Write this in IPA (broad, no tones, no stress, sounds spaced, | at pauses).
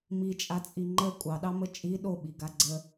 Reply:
m i t͡ʃʼ a t͡sʼ i ŋ͡ǃ ə kʷʼ ɑ ɗ ɑ m ə t͡ʃʼ i ɗ o ɓ i ɡ a ɡ͡ǀ ə